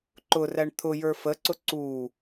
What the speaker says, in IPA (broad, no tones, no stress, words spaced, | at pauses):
ǃʊræɳ t̪ʰʊjə˞ fəǀʊ ǀu